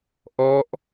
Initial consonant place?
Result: glottal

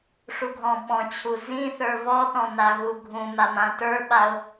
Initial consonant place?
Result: retroflex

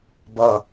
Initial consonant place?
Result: labial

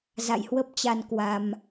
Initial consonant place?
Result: alveolar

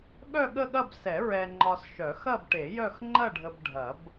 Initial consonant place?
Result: velar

